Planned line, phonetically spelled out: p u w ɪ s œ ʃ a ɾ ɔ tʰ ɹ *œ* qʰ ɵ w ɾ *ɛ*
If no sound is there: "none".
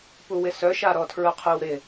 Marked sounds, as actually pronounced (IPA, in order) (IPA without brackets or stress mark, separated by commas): œ, ɪ